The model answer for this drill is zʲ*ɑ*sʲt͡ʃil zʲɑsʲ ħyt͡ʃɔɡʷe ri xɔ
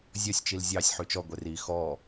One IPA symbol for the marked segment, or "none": ɔ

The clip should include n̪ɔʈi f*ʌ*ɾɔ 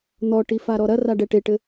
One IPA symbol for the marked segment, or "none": a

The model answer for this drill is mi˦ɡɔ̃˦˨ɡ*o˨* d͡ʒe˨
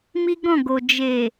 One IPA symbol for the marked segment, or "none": o˨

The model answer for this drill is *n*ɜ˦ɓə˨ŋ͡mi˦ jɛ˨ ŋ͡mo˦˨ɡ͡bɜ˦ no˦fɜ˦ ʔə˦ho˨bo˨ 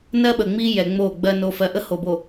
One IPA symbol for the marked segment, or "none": n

